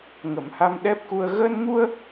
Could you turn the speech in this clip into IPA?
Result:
ŋ ə˨˩˨ m h a˧ m ɗ ɛ˦˥ p̚ k u˧ ə̯ ɣ əː˧ n ŋ u˧ ə̯

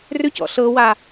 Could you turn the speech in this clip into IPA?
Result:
r ʏ c ɔ̰ ɬ ɤ w a

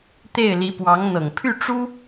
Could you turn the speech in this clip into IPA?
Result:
t̪ e˥˩ ɪ̯ l i˧˥ p w ɑ˧˥ ŋ n̪ ɤ˨˩ ŋ pʰ y˥˩ ʈ͡ʂ u˥

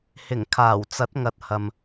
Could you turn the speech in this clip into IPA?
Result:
h ɪ˨˩ ŋ kʰ aː˨˩ w t͡s ɐ˨˥ t̚ ŋ ɐ˨ t̚ h ɐ˨ m

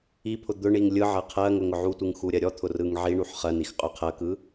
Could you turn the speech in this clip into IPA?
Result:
i pʰ ʊ d̪ ʊ ɳ i ŋ lʲ ɯ ʕ ɜ qʰ ɜ ŋ ʊ ŋ ʊ ʕ u tʷ ɯ ŋ x u ɾʲ ɜ ɾʲ ɔ t̪ʰ ʊ r ɯ ŋ ʕ i ɳ u ħ χ ɜ n i x qʼ ʊ qʰ ɜ k ɯ

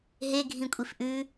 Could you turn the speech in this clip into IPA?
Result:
ɦ e ɡʱ ĩ kʷʼ i f ʔ ʉ

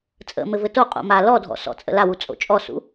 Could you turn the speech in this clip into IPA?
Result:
t͡sʼ ə̰ m ɘ v ɘ t o qʼ o̰ m a l ɔ dʱ ɔ̰ s ɔ̰ t͡sʼ ə̰ l a w u t͡sʼ o̰ t͡ʃʼ ɔ s ṵ

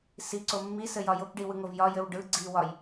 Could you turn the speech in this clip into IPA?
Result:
s i ǀ o mː i s ɘ j ɒ j o k ɖ i w ɯ ŋ o v j ɒ j ɘ w ɖ ɯ ɡ͡ǀ i w ɒ j

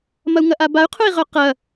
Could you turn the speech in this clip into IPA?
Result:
m ɐ u̯ ŋ ɐ ʔ a b a y̯ qʰ ʊ i̯ ʁ œ q ɐ

